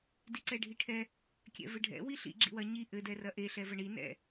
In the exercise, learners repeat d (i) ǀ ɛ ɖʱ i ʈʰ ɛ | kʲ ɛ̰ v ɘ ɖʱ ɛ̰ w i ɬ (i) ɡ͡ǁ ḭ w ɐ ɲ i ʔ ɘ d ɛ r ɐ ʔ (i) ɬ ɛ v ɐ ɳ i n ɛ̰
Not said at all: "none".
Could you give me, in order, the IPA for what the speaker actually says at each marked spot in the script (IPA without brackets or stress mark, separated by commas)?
i, ḭ, e